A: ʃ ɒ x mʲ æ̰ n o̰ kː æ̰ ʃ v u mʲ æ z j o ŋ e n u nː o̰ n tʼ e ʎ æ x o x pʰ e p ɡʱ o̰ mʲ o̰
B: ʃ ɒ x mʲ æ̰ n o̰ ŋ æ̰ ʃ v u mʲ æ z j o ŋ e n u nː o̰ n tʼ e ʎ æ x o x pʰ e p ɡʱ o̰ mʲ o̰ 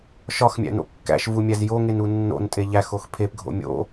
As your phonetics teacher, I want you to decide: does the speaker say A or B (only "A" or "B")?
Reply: A